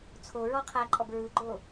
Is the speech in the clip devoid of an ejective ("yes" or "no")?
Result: no